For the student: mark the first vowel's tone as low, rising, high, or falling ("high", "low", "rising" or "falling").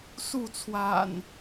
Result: falling